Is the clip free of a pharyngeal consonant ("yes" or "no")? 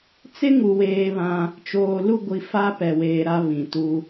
yes